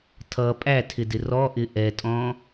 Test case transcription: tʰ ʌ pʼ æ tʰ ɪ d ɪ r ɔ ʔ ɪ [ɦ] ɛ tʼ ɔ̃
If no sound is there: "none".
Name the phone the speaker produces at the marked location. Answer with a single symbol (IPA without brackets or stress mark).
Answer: ʔ